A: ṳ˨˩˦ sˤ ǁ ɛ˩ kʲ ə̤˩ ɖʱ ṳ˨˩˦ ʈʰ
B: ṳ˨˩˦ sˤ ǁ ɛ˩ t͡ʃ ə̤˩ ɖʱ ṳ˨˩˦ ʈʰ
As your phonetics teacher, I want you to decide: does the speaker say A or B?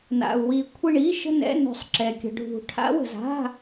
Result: A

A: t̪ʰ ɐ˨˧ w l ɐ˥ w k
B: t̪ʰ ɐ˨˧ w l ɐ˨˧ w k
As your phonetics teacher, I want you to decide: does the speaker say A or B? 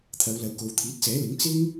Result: B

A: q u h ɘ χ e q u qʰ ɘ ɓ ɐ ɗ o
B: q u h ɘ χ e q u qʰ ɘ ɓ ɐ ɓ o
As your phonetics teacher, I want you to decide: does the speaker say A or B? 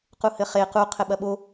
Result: B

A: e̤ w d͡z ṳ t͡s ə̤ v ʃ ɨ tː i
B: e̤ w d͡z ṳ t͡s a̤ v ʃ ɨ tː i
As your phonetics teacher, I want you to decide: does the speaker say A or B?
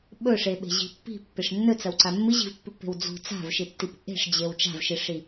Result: B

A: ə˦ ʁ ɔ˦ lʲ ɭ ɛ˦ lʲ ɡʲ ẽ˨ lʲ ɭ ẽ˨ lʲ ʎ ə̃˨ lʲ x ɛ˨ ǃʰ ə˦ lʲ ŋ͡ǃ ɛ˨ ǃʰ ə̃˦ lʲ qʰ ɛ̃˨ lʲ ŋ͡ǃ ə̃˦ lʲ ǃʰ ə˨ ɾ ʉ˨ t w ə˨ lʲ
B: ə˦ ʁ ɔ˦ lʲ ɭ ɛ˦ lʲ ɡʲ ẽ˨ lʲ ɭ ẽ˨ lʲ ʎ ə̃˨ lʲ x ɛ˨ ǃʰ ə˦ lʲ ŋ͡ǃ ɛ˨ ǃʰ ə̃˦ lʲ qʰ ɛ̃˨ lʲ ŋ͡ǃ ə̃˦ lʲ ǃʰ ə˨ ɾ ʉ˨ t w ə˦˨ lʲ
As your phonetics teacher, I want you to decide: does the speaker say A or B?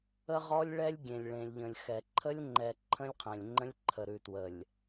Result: A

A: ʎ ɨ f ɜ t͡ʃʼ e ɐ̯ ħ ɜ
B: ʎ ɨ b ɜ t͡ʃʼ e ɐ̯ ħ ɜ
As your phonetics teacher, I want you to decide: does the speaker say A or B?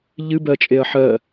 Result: B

